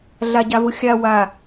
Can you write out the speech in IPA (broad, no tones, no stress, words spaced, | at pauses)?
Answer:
ɮaɟavʊxʲa wa